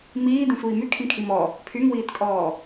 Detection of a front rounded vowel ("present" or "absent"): present